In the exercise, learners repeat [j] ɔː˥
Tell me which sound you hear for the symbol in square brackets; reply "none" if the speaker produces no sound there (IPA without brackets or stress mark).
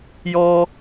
j